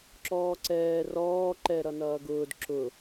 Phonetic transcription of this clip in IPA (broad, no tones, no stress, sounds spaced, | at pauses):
ǁ ɔː ǀ ɛː r ɔː ǃ ɛ ɾ ʌ n ʌː ɡ ʊː d ǁ ʊ